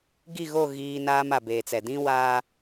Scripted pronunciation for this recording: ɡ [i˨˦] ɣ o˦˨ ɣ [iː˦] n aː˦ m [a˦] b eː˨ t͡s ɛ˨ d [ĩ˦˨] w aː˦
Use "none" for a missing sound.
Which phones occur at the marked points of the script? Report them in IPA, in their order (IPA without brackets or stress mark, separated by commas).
i˦˨, iː˦, a˨, ĩ˦